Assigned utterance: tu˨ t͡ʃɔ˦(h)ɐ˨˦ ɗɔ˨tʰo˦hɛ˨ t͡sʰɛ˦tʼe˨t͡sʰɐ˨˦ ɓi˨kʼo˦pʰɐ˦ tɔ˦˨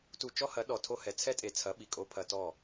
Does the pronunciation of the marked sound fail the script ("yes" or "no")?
no